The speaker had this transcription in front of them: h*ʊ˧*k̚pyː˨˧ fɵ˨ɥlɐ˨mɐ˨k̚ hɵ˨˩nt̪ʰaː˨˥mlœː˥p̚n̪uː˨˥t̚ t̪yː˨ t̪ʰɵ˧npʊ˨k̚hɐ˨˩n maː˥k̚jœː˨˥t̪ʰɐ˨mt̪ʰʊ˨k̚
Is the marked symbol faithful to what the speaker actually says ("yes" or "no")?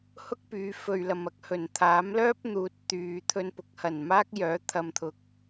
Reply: no